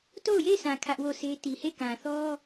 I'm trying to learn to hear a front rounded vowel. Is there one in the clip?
no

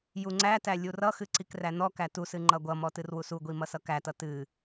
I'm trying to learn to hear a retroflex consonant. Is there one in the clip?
no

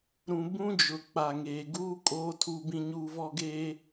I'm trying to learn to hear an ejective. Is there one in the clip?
yes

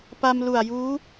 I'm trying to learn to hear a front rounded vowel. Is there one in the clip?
no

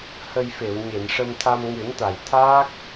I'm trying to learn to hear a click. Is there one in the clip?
no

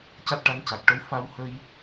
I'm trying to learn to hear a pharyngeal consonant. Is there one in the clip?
no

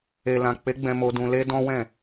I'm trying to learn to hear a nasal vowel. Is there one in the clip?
yes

